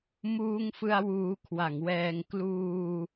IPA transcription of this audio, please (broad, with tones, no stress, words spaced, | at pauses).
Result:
muː˧ŋfɯ˧a̯ wuː˧kʰwa˩˦ŋwɛː˧ŋ kluː˧